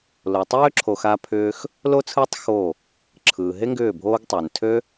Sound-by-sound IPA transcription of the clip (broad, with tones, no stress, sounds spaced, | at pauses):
l o˨ tˤ øː˦ ǁʰ o˧ x a˦ pʰ ʏː˦ x | l o˦ t͡sʰ ɯː˦ tˤ x o˦˨ | ǁʰ ɯː˨ ɦ e˦ ŋ ɡ ʏː˦˨ bʱ oː˦ ɡ tˤ ɯː˨ n tʰ ø˦